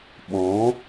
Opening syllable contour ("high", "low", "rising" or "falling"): rising